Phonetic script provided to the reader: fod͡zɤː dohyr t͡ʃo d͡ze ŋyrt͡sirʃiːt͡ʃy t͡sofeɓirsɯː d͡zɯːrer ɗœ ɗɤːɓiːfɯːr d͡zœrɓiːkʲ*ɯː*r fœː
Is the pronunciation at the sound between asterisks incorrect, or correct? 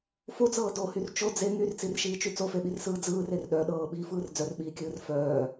correct